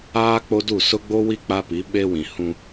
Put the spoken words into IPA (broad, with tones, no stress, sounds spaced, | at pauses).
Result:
aː˦ k͡p o˦ d u˦˨ s ʊ˦ ɡ͡b o˦ w i˦ k͡p a˦ p i˨˦ ɓ e˦ w ĩ˨ h ũ˦